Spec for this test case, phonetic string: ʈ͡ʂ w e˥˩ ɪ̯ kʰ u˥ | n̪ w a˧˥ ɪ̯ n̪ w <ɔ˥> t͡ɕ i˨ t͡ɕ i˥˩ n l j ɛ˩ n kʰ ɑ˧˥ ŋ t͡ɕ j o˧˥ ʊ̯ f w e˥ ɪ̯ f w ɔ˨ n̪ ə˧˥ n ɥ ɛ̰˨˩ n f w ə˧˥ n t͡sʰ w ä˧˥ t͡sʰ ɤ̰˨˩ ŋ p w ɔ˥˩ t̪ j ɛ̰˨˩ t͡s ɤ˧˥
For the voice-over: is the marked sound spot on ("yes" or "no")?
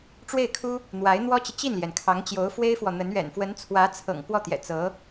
yes